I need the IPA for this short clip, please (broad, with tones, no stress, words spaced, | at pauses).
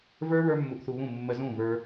və˞˦ βə˞˦mːu˧ʔθu˧βũ˦˨ mːə˧zũ˦˨ və˞˦